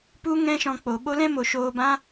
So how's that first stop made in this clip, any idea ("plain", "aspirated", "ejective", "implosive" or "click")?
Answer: plain